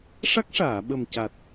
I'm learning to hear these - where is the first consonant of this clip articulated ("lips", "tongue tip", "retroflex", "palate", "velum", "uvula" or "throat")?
retroflex